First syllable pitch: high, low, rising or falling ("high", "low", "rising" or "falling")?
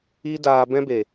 high